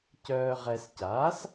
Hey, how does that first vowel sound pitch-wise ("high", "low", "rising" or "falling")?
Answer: low